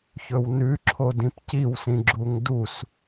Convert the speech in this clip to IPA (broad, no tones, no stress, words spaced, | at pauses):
çɵwnʉ ǁʰodĩpciwsĩ ɡ͡ǁuŋdus